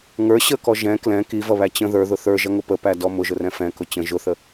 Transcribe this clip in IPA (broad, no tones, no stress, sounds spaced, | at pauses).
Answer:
ŋ ə˞ ɕ ə k ɔ ʒ ɛ̃ k l ɛ̃ k i v ʌ β æ t͡ɕ ə̃ ð ə˞ ð ʊ θ ə˞ ʒ ʌ ŋ ʊ p ə p æ d ɔ m ʊ ʒ ʊ r ɛ̃ f ɛ̃ k ʊ t͡ɕ ə̃ ʒ ʊ θ ə